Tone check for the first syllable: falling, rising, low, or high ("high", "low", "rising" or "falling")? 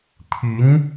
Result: rising